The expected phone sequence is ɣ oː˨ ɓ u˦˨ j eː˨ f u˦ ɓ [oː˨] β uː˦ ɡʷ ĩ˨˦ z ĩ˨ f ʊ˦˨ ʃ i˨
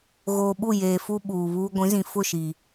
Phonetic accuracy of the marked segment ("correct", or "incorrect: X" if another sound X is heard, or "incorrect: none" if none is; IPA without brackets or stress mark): incorrect: uː˨